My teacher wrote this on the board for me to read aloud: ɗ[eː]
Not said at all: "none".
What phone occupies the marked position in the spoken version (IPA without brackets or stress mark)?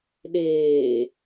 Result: eː